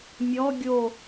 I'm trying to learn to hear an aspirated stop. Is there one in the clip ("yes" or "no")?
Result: no